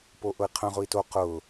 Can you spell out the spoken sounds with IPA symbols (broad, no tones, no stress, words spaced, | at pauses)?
poʔʊi̯qʰœ̃ ʁʊi̯to qʊ